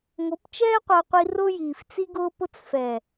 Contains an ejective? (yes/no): no